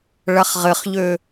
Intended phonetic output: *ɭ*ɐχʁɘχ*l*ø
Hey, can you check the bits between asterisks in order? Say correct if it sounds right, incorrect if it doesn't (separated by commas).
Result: correct, incorrect